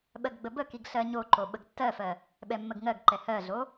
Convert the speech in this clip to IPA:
ɓɜɡɡ͡bəbəkiɡ ɬɜɲoǃo ɓəɡtːɜfɜ | ɓɛmːəɡŋɜɡǃɛ hɜɮo

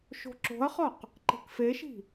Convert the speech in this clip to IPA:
ʃo̤ǁo̤ɐ̯χɒq | ǃe̤kfeʃi̤

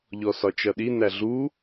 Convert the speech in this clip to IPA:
ʎɔsɒt͡ʃʌɗi næɮu

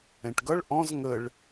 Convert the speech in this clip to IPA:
ɛ̃ʈɡʌɭ ʔɔ̃z ŋəɭ

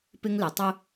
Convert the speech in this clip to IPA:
pɪ˦ŋlɪ˨ tˤʊ˦

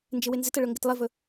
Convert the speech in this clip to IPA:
nd͡ʒɪwɪnzɪtə ɭɵŋɡɪtlˠɪvɵ

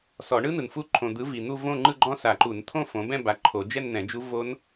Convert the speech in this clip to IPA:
sɔ˨˩˦ɳɯ˦˥nɯ˨nfu˦˥ ǃʰõ˨d̪ɯ˨˦ vi˨n̪u˥˧võ˥˧ ŋ͡ǃɯ˥˧ɡ͡ǃɔ̃˦˥sa˨˩˦ǃu˨˩˦n t̪ʰõ˥˧fõ˨˦bɛ̃˥˧ ba˨˦ ǃʰo˨˩˦d͡ʒɛ˥˧nn̪ɛ̃˨˩˦d͡ʒu˦˥ vo˦˥n

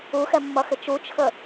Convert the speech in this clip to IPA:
uxɛmːʌxɪ t͡ʃut͡ʃʰə

